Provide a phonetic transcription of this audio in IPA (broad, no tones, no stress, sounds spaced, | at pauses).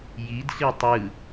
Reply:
j i d ɬ i tˤ ɯ